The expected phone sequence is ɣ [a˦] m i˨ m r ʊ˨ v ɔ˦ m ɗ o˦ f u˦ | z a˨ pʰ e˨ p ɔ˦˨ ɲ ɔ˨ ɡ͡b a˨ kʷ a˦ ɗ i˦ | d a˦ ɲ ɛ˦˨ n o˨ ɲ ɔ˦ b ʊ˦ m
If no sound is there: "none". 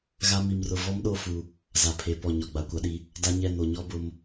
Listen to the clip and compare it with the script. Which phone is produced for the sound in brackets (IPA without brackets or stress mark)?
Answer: a˦